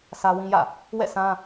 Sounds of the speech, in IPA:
sʰ ä˦ w ĩ˦ j ä̰˦˨ | w ɛ̰˦˨ s ã˦

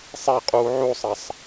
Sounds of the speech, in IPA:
sˤ e qʼ uː ʕ u sˤ ɐ sˤ

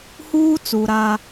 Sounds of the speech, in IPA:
h uː˦ t͡s u˨ ɾ a˦

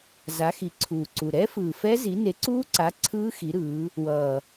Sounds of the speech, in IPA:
z a˨˦ x i˨˩ ǀʰ uː˨˩ ǀ u˨˩ ɾ ɛ˦˥ f ɯː˨˩ f ɛ˦˥ z i˨˦ n e˨˦ ǀ uː˦˥ ǀ a˨˦ ǀʰ ɯː˦˥ x i˨˦ ɾ ɯː˨˦ | w ʌː˨˩

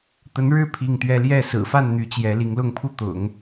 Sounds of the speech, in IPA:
t̪ ə˧˥ n ɻ ɻ̩˥˧ pʰ i˥˩ ŋ t̪ ɥ ɛ˥ l j ɛ˥˩ s ɹ̩˨˩ f a˥˩ n n̪ y˧˥ t͡ɕ j ɛ˧˥ l i˧˥ ŋ l ʊ˥˩ ŋ pʰ u˥ t̪ ʊ̰˨˩˦ ŋ

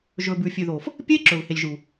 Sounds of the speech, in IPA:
ʒ ɵː˨ b ʉː˨ fʲ ʉː˨ ð oː˨ f | pʲ eː˦ ǁ ɵː˨ v h e˨ lʲ ʒ uː˨

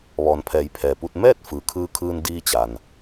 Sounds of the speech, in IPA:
ʋ ɔː˩ n pʰ ɛː˩˧ j pʰ ɛː˩ p u˧ t̚ m ɛː˥˨ t̚ f ɯː˩ kʰ ɯː˧ kʰ ɯː˧ n d iː˧ t͡ɕ a˩ n

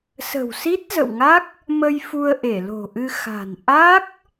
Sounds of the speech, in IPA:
s ə̤˨˩ w s i˦˥ t̚ z ə̰˧˨ w ŋ a˦˥ k̚ | m ə˧ j f u˧ ə̯ ʔ e˧˩ l o̤˨˩ ʔ ɨ˧ x a̤˨˩ n ʔ a˦˥ k̚

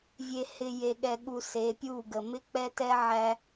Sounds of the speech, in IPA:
vʲ e˨ h ɪ˨ j e˨ ɠ ɛ˨ ɠ u˨ s e˨˦ pʲ u˦˨ ɡ ə˨ m ɪ˦ k͡p ɛ˦ t ɛ˦ ʕ æ˦

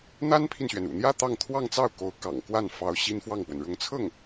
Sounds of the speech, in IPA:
n̪ a˥ n pʰ i˨ n ɕ ɥ ɛ˩ n ṵ˨˩ n̪ j ä˥˧ t̪ ɑ˥˧ ŋ t̪ʰ w ɑ˥˧ ŋ t͡s ɑ˥˩ ʊ̯ k o˧˥ ʊ̯ k ɑ̰˨˩ ŋ k w a˥˩ n f ɑ˧˥ ʊ̯ ɕ i˥ n f w ɑ˥˩ ŋ p w ə˩ n ɻ ʊ˧˥ ŋ t͡sʰ ɤ˥˩ ŋ

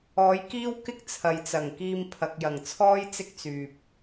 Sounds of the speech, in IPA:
ɔː˨˥ j k iː˥ w k ɪ˥ k̚ t͡sʰ ɐ˨ j t͡s ɐ˨˩ ŋ k iː˧ m pʰ ɐ˨ k̚ j ɐ˨˩ ŋ t͡sʰ ɔː˥ j t͡s ɪ˥ k̚ t͡s yː˨ p̚

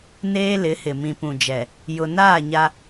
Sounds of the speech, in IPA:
n eː˦ l ɪ˨˦ h ɪ˨ m ĩ˨ p ũ˨ d͡ʒ ɛ˨ | j ʊ˨ n aː˦˨ ɲ a˦

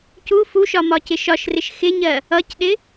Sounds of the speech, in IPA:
c u f u ʃ ɒ m ɒ c ɪ ʃ ɒ ʃ r ɪ ʃ x ɪ ɲ ɜ | ʌ c ɗ ɪ

